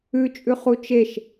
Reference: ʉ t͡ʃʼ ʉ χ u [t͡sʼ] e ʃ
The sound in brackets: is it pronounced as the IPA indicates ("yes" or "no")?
no